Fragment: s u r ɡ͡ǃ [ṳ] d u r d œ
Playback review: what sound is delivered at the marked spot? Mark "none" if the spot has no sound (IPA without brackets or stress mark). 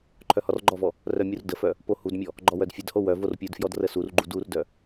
u